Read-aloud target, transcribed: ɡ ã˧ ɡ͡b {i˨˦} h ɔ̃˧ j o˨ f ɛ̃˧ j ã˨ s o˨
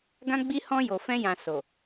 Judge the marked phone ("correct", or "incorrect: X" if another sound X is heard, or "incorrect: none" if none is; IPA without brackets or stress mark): incorrect: i˧